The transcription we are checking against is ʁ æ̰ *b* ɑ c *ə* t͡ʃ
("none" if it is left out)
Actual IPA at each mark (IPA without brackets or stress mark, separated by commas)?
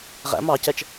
m, ɛ